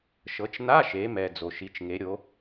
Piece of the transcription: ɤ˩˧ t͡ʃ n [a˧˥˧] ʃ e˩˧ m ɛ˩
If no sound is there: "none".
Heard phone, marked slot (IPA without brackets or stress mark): a˧˥˧